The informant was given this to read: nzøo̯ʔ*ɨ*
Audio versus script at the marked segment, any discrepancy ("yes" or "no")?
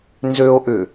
yes